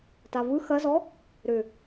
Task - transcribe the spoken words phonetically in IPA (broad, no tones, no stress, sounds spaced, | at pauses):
t a v ɯ x ɐ z ɔ | ɾ ʏ